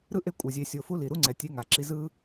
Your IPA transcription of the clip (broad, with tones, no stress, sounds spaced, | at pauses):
ɾ ɯ˥ ʔ e˦ kʷʼ ɯ˩ zʲ e˨ sʲ o˨ f u˦ l i˩ ɾ u˥ ŋ͡ǀ ɛ˩ tʲ e˦ ŋ a˩ ǁ i˦ z ɯ˥